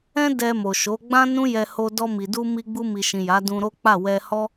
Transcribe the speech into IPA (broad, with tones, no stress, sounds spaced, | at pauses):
ɛ̃˦ d ɛ˧ m o˨ ʃ o˨˦ ɡ͡b ã˦ n ũ˦ j ɛ˧ h o˧ d ɔ˧ m i˨ d u˧ m i˧ ɡ͡b u˧ m i˨ ʃ ĩ˨ j a˨˦ d ũ˧ ɾ o˦ k͡p a˦˨ w ɛ˧ h ɔ˦